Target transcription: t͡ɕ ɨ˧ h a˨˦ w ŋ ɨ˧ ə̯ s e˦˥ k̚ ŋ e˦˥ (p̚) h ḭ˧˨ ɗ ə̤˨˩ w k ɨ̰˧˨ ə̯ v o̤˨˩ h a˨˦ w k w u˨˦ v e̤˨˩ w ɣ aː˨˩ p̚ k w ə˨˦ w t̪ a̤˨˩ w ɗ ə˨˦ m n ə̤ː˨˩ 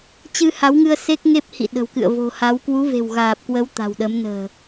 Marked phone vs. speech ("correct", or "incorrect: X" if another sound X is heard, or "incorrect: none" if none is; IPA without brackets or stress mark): correct